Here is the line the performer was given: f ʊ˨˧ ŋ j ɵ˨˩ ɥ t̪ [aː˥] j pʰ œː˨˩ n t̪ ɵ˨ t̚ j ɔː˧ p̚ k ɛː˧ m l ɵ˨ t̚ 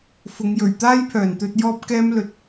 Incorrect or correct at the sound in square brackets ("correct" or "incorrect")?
correct